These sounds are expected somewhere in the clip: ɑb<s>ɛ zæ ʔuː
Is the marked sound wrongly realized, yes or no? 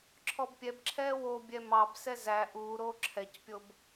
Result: no